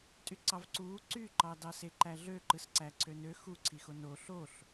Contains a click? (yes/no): yes